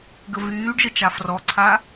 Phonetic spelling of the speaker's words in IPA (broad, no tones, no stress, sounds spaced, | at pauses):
ɡ ə v yː ɖ ʒ ə t͡ʃ a f r ɔ ǀʰ a